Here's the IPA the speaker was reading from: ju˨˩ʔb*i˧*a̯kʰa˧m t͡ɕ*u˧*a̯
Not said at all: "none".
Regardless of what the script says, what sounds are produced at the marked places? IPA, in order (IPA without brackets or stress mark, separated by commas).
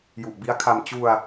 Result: i˦˥, u˧